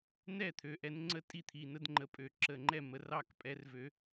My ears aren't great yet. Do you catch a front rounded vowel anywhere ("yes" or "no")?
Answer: yes